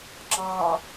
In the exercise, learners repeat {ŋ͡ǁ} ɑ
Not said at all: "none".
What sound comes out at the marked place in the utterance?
ŋ͡ǁ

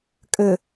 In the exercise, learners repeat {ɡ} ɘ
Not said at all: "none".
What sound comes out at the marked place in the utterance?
kʼ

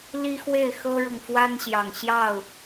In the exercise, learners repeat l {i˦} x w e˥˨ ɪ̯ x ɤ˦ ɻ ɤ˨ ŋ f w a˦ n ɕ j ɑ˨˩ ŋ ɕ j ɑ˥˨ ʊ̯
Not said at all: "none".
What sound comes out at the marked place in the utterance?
i˦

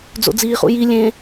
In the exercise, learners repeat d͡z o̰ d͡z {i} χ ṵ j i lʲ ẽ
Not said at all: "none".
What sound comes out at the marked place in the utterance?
iː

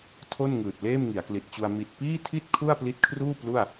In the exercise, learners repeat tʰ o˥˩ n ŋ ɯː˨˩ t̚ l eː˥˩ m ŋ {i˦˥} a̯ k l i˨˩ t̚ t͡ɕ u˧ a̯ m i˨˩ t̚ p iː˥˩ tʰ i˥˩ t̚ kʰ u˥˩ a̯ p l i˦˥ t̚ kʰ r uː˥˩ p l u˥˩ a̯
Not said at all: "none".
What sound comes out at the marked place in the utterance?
i˩˦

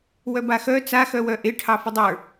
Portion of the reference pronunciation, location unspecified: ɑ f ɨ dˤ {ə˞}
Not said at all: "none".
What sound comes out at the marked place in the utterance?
ə˞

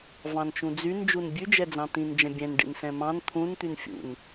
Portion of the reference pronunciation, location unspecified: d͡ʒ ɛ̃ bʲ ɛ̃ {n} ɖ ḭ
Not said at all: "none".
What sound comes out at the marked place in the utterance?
n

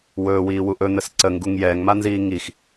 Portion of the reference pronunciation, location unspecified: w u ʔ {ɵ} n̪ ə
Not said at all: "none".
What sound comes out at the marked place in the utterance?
ɵ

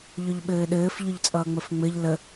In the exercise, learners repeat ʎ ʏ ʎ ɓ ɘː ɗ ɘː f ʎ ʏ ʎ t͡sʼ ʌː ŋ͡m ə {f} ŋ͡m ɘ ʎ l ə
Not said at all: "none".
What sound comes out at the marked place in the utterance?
f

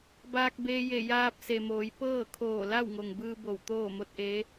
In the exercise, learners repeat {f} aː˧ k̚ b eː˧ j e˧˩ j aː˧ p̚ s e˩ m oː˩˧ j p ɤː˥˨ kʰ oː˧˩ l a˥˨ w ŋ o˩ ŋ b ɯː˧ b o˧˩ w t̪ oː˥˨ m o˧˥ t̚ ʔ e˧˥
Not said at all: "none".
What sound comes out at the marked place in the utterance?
b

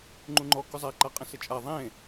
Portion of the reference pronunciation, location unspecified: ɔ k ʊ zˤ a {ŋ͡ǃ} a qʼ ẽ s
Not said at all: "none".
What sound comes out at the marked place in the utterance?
ǃ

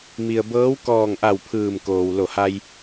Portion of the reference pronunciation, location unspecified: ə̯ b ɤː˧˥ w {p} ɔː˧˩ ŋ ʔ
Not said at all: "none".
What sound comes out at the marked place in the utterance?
k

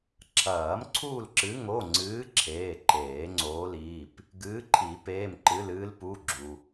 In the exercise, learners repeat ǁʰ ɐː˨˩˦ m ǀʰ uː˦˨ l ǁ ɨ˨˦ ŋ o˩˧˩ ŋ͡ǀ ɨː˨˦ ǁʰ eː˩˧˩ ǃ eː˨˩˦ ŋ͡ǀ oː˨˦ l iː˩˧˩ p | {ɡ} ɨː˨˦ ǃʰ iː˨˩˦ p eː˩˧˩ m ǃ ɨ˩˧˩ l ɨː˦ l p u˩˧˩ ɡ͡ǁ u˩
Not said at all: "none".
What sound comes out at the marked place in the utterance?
ɡ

